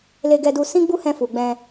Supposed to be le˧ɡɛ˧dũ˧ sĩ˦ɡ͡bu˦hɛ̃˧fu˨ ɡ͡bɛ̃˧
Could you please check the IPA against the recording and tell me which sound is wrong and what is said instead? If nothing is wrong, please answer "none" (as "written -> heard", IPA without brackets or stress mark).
ũ˧ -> u˧